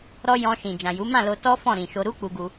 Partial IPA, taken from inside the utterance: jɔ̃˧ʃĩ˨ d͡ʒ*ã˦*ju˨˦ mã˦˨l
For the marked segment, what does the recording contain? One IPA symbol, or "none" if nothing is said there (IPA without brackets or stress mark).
ã˨